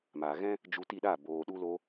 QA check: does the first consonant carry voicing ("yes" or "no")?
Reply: yes